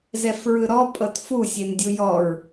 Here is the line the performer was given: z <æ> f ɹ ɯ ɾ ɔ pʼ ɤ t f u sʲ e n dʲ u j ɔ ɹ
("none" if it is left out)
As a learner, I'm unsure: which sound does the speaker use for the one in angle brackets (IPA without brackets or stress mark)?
ɛ